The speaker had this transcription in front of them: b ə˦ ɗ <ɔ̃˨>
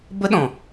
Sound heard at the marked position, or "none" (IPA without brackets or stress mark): ɔ̃˨